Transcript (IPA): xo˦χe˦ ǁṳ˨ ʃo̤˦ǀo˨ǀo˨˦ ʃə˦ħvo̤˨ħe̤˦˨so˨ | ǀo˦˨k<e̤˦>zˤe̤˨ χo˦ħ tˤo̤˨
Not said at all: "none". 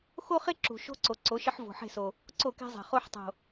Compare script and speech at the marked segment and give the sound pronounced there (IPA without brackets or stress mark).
e̤˦